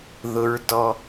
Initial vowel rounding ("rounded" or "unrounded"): rounded